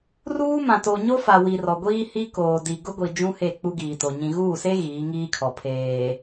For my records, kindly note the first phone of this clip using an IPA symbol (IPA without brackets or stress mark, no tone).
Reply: r